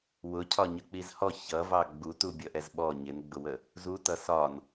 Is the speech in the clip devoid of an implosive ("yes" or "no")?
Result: no